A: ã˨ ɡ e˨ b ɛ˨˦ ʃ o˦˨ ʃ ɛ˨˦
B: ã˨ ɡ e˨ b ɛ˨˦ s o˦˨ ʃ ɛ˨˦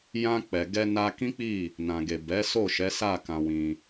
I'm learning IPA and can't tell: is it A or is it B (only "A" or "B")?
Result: B